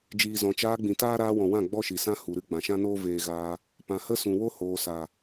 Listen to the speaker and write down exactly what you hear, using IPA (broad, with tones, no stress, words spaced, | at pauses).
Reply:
d͡ʒiː˨zɔ̃˨ t͡ʃaː˧ɡ͡bĩ˨ taː˦ ɾaː˧wɔ̃˨wã˦˨ ɡ͡bɔ˦ʃi˨sã˦ hu˨ɾɨ˦ ɡ͡bã˨ʃã˦noː˦ veː˧ ɣaː˧ | pã˨hə˦ sũ˨wo˦hoː˨sa˨